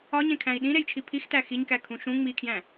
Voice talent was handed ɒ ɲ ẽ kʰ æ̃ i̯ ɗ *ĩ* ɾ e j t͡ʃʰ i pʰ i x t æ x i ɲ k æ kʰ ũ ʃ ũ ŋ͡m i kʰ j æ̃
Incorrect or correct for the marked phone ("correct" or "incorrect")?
correct